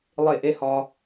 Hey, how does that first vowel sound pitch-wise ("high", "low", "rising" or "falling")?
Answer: falling